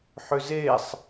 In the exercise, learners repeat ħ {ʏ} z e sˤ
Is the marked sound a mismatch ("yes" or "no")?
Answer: no